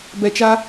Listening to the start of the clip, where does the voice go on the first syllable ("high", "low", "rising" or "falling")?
low